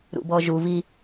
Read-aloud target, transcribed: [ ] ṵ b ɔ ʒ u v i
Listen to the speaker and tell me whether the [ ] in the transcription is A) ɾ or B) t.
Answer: A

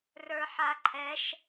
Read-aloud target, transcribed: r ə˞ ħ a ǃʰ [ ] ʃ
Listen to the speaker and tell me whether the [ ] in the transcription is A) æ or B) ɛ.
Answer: B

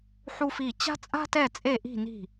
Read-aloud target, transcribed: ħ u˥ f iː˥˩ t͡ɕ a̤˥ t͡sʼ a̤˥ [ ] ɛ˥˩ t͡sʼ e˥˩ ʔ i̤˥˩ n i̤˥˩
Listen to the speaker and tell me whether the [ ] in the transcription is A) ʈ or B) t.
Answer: B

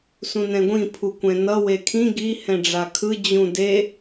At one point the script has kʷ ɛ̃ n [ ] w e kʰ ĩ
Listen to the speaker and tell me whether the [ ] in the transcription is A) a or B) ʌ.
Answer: B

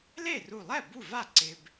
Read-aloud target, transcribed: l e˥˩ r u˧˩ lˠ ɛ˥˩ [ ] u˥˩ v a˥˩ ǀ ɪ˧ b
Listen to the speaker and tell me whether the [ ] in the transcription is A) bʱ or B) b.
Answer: B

